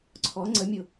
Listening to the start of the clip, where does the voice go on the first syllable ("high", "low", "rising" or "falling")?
rising